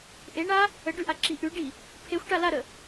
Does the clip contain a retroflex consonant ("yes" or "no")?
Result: yes